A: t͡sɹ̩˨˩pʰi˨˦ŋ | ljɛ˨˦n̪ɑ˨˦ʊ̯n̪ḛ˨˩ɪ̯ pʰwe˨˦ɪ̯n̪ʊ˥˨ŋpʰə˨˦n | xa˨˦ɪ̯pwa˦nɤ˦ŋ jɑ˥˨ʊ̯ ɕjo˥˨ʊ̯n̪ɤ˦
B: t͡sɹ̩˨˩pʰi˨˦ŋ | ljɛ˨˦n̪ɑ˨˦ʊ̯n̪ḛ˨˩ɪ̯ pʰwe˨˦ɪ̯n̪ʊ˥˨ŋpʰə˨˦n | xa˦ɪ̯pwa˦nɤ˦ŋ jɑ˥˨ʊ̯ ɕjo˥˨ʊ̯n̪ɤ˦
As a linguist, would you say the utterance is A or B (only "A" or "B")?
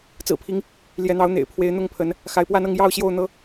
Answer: A